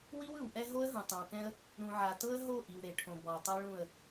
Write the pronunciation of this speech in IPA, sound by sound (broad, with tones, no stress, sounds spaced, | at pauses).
w i˦ w ɯ˨ w ʔ ɛ˦ ɦ o˦ ə̯ ɦ ũ˨ tˤ ẽ˨ w k ɛ̃˦ ə̯ | ɾ ũ˨ ʕ a˨ t ɤ˦ ə̯ ɦ o˦˨ ʔ i˨ w ɾ e˨ ʈʰ õ˨ b ɔ˨ ə̯ tˤ ɛ˦ ɭ ũ˦˨ ə̯